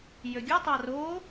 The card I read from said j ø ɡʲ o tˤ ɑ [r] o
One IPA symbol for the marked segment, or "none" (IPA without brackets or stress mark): r